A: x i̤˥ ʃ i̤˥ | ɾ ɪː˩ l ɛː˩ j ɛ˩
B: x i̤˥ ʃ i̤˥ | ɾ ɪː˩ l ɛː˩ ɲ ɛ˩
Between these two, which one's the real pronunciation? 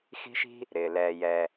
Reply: A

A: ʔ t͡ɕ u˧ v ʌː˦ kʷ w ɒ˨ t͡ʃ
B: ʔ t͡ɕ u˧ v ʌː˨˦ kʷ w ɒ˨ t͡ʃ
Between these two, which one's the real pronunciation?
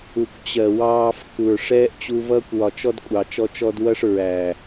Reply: A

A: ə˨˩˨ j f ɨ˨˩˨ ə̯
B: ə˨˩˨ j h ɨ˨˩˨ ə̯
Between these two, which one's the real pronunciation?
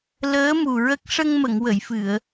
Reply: A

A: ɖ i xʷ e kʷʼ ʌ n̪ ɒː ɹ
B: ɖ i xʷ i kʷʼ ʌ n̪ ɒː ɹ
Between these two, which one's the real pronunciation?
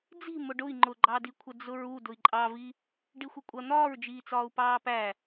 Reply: B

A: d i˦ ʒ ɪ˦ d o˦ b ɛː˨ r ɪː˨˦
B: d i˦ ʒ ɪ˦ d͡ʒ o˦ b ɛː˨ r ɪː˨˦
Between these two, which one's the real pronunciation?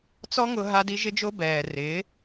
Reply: B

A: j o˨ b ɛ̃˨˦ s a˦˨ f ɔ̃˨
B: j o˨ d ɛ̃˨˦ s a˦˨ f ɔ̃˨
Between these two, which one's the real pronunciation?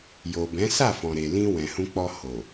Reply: A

